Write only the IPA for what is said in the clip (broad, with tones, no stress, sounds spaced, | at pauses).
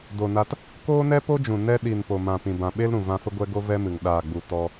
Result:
d o˨ n a˧ t | k oː˦ n ɛ˦ p o˦ d͡ʒ ũ˨ n ɛ˧ ɗ i˨ n p o˨ m ã˨ p ĩ˨ b ã˨ ɓ e˦ l ɾ ũ˨ v ã˧ f ə˧ ɡʷ ɛ˧ ɡ o˧ v ɛ˦ m ɨ˨ ŋ ɗ aː˨ ɡ͡b u˨ t ɔ˦